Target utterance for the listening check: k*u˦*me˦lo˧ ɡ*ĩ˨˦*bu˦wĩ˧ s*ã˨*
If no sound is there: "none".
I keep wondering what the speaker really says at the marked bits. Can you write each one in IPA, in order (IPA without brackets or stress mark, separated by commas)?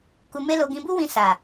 u˧, ĩ˧, a˨